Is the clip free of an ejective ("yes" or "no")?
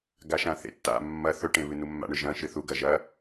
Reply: yes